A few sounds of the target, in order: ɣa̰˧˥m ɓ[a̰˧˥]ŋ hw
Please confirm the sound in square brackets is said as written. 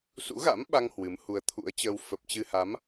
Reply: no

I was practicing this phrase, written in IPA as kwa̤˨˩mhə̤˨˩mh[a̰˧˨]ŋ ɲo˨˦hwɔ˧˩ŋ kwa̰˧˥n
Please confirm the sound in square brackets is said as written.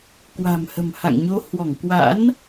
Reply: yes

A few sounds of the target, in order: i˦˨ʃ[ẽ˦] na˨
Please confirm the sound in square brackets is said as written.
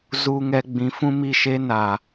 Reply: no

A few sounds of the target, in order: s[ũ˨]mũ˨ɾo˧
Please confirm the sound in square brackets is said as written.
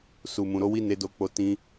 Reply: no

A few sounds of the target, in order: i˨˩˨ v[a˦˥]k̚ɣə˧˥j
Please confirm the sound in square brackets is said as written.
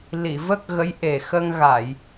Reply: no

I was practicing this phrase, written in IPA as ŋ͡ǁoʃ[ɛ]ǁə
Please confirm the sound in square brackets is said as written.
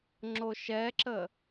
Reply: yes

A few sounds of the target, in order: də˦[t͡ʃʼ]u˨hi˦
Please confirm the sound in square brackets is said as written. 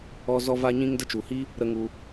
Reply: no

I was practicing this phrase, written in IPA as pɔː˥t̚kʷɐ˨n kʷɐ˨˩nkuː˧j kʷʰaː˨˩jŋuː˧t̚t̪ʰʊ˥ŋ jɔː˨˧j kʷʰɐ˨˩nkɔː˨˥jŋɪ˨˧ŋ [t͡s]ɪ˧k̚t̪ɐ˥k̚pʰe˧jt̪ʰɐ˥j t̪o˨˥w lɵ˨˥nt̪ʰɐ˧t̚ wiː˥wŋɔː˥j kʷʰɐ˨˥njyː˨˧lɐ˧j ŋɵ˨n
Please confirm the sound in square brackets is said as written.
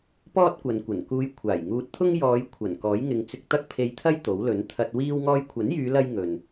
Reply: yes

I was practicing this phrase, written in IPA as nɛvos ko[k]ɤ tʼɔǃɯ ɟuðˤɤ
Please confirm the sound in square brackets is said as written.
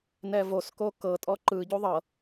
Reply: yes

